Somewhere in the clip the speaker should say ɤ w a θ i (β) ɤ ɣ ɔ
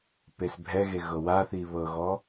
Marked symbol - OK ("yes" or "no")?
yes